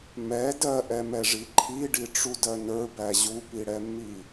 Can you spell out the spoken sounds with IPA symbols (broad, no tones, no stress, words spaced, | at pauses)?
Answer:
mɛ dɜʔɛmɛʐi ǃʰiɖiʈ͡ʂudɜ nə˞bæ ʑupiɽɛmːi